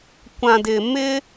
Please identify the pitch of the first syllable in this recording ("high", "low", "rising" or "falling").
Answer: low